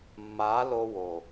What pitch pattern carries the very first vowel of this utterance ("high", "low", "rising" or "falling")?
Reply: rising